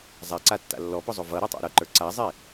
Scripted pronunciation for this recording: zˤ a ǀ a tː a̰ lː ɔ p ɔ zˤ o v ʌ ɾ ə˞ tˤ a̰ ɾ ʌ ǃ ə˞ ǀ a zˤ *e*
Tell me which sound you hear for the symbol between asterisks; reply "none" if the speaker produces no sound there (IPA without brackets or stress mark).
e